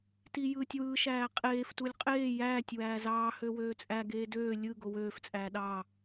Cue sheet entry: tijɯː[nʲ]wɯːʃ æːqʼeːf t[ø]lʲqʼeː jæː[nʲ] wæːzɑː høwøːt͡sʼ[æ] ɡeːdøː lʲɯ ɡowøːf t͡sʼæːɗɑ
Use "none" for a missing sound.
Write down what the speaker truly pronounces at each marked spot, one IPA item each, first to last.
tʲ, u, tʲ, æ

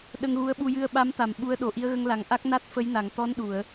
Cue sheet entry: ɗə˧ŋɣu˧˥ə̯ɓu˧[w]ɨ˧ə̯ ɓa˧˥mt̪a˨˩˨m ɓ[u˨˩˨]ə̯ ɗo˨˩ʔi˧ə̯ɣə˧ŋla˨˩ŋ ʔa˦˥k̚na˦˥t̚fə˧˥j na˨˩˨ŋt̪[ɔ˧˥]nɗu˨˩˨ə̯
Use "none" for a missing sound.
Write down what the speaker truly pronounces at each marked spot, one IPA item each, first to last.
j, u˧˥, ɔ˧˥

